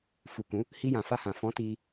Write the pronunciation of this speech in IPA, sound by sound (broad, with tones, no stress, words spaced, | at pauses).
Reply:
fu˨kũ˨˦ | hi˧jã˨fa˧hã˨ fɔ̃˨˦ti˧